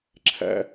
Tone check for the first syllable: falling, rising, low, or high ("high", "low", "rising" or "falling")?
high